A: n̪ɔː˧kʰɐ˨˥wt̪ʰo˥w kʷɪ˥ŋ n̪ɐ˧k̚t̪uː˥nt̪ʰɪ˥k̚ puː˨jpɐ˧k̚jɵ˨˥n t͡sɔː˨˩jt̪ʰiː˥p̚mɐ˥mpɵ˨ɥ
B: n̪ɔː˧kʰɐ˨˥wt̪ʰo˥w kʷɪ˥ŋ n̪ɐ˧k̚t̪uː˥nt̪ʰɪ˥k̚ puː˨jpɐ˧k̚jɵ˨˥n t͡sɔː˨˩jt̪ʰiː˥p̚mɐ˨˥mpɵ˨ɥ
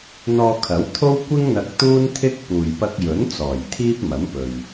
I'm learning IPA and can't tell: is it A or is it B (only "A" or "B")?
B